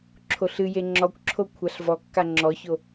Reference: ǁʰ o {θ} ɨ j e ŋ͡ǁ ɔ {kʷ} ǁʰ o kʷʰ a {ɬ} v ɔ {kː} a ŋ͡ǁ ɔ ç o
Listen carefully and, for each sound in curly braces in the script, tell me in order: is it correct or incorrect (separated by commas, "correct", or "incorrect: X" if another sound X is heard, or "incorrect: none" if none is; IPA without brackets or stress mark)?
incorrect: ɬ, correct, correct, correct